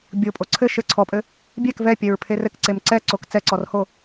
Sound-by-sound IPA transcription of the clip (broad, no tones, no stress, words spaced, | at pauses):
bʲopʼo ǀʰɘ ʃɘ ǀʰɔpʼɘ | bʲɛk vɛpʲɛɹpʰe rɘkǀem ǀɛǀok t͡sɛǀɔrho